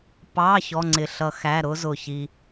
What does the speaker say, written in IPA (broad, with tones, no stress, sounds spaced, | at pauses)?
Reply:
p ɑ˧˥˧ ç ɔ˧˥˧ ŋ͡ǀ ɪ˧˩ ɬ ʌ˧ x æ˧˥˧ ɾ ʊ˦˥ z ʊ˧˩ ç i˧